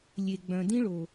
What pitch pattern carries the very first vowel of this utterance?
low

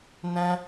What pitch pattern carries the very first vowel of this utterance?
high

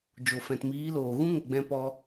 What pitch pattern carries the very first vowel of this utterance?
low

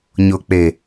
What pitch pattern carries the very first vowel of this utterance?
low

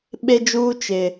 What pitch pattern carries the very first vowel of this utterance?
high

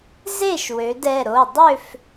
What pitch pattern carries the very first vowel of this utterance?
falling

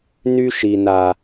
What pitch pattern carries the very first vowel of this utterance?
high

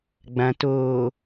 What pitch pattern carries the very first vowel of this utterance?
low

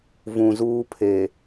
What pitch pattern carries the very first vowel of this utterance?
low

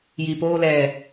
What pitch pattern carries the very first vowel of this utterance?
low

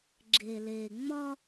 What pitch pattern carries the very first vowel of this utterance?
low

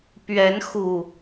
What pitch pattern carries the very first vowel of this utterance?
rising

